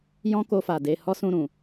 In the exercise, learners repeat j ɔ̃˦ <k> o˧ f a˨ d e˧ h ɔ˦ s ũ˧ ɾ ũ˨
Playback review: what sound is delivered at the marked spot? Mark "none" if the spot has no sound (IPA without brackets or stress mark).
k